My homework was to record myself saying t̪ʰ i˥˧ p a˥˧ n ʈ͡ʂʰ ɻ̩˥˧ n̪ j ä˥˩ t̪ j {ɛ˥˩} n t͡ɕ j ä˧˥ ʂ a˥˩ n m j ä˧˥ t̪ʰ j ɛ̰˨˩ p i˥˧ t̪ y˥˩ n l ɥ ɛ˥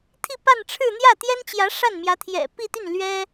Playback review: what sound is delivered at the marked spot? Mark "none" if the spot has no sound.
ɛ˥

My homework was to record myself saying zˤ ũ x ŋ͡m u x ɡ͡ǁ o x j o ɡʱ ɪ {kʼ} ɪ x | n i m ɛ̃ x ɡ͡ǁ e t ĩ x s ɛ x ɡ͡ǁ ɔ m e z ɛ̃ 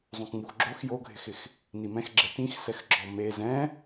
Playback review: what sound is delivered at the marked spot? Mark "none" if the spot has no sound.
x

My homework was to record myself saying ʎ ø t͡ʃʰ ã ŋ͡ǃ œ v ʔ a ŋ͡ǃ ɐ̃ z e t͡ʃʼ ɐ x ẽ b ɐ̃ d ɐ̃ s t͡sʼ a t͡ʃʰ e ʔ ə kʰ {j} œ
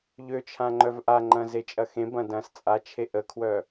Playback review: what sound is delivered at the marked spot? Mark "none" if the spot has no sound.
w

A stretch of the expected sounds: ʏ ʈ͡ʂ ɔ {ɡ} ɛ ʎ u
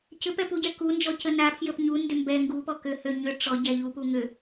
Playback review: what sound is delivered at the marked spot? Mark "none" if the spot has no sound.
ɟ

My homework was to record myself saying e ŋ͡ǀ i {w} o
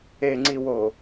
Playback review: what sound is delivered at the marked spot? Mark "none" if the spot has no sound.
w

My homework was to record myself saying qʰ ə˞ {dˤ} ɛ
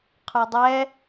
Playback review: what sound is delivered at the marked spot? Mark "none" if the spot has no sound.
dˤ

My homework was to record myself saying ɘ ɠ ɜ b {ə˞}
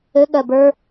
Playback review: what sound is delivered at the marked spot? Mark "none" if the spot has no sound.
ə˞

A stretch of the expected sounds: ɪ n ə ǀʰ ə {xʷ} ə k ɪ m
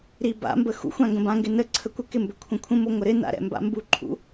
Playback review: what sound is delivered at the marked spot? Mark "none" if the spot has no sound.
kʷ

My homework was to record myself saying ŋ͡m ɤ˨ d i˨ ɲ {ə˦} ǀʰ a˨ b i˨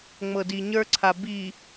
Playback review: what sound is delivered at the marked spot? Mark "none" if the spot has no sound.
ə˞˦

